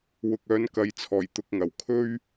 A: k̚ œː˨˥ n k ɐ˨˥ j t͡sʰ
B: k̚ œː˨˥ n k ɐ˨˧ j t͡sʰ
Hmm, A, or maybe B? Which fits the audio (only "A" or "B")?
B